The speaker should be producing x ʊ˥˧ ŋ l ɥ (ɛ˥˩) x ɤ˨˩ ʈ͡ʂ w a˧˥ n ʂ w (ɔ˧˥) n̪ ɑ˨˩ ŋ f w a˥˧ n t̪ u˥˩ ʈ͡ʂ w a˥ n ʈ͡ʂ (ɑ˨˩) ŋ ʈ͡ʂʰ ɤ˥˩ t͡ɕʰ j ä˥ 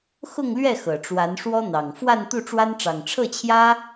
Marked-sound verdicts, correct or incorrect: correct, incorrect: ɔ˥, correct

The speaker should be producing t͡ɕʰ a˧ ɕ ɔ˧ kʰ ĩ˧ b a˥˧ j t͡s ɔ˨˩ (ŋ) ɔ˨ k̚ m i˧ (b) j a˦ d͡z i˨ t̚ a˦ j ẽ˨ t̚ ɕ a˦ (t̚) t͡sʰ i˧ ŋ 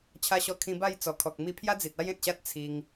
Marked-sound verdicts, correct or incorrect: incorrect: kʰ, incorrect: pʰ, correct

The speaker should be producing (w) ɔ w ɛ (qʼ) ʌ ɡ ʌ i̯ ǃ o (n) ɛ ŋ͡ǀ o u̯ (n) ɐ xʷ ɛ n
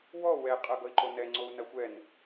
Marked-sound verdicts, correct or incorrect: correct, correct, correct, correct

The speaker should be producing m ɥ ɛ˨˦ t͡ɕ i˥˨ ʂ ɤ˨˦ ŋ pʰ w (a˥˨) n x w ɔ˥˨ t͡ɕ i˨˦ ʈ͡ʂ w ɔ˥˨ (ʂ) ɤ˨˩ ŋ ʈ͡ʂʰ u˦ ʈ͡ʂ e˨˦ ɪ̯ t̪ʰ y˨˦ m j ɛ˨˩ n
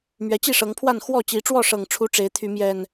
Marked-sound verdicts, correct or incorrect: correct, correct

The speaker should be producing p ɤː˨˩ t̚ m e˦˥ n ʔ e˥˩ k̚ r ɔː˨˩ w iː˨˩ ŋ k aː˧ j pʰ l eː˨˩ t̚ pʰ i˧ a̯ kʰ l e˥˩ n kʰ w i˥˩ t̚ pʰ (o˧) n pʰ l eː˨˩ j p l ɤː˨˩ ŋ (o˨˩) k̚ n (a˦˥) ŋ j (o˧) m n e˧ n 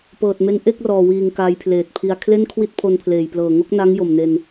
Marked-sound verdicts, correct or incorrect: correct, incorrect: o˥˩, correct, incorrect: o˨˩

